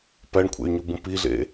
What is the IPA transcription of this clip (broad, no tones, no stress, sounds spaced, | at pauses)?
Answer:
p æ ɳ kʷʰ ḛ y̯ ɲ u b ũ p i ɮ ḛ